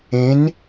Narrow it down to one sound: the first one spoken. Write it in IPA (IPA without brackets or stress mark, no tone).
ẽ